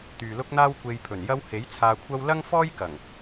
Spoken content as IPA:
t̪ yː˨ l ʊ˥ k̚ n̪ aː˥ w kʷ e˧ j pʰ ɵ˨˩ n j ɐ˥ w h e˨˥ j t͡sʰ aː˧ kʷʰ ɐ˥ w l ɐ˥ ŋ f ɔː˥ j k ɐ˨˩ ŋ

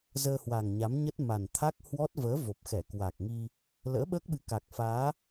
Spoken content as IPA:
z əː˧ h w a˨˩ ŋ ɲ a˨˦ m ɲ ə˦˥ t̚ m a˨˩ n t̪ʰ a˦˥ k̚ h w ɔ˦˥ t̚ v əː˨˦ v o˨˩ p̚ x ɛ˧˩ k w a˨˩ k̚ ŋ i˧ | l ə̰ː˧˥ ɓ əː˦˥ k̚ ɓ ɨ˨˦ k a˨˩ k̚ f aː˨˦

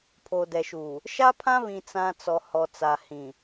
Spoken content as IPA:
pʰ oː˨ d ɛ˨ ʃ uː˨ | ʃ a˦ pʰ ã˦ β ĩ˨ t͡s ã˨ t͡s ɔ˨ h ɔ˨ t͡s a˨ h ĩ˨

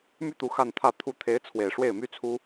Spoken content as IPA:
m y˥˩ t̪ u˧˥ x a˥˧ n t̪ʰ ä˥˩ t̪ʰ u˧˥ t̪ʰ e˧˥ ɪ̯ t͡sʰ w e˨˩ ɪ̯ ʂ w e˥˩ ɪ̯ m y˥ t͡sʰ u˥

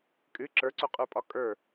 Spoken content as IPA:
kʼ ɨ ǁ ə˞ ǀ o qʼ ə˞ pʼ ɒ kʼ ə˞

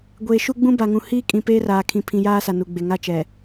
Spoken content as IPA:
ɡʷ eː˨ ʃ u˦ ɡ͡b ũ˦ b a˨ ŋ ũ˨ h iː˦ kʼ ĩ˨ p eː˦ r aː˨ kʰ ĩ˨ pʰ ĩ˨ j aː˦ s a˨ n u˨ ɡ͡b e˨ ŋ a˦˨ t͡ʃ ɛ˨

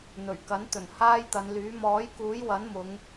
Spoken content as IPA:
n̪ ɵ˨˩ ɥ k ɐ˨˥ n t̪ ɵ˨˩ n h aː˥ j t̪ ɐ˨˧ n l yː˨˥ m ɔː˨˥ j k uː˨˥ j w ɐ˨˥ n m ʊ˨˧ ŋ

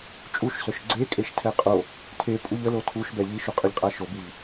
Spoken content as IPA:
t͡ʃʼ u ʃ s œ ʃ ɡ͡ǀ e kʼ e ʃ tʰ ɛ qʼ o | tʰ e pʼ u ʎ ə l o tʰ u ʃ b ɛ ʎ i ʃ u qʼ ə ʎ qʼ a ʃ o b i ʎ

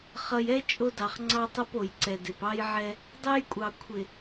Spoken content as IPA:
χ ʌ˨ j ɛ˦ t͡ʃʼ o˦ d ɑ˨ χ ŋ͡ǀ ɑ˦ tˤ ʌ˦ p o˨ j ǀ ɛ˨ d ɪ˨ p ɑ˦ j ʕ ɛ˦ | dˤ ɛ˦ j kʷʼ ɑ˨ kʷʰ ɪ˨

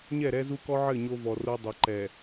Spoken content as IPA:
ɲ ɛ˦˨ ɾ ɛ˦ z u˦ k ɔ˦ ʕ ɘ˦˨ ɲ o˦ v ɔ˨ r o˦ dˤ ɐ˨ ǃ ɛ˨

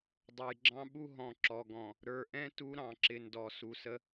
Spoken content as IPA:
dˤ ʌ˨ j ɡ͡ǁ ɑ̃˦ ɓ u˦ ɦ ɔ̃˨ ǁ ɔ˨ ɡ ɔ̃˨ | ɾ ə˞˨ ʔ ɛ̃˦ t u˦ ɾ ɑ̃˨ ǁ ɪ˨ n d ɔ˨ s u˨ s ə˦

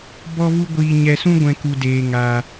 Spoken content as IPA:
b ɔ˦ v u˦ ɡʷ iː˧ ɲ ɛ˧ s ũ˦ ɡʷ ɛ̃˧ k u˧ d eː˧ ŋ aː˧

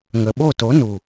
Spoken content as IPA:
ŋ ə˨ ɓ o˦˨ t o˨˦ n u˨

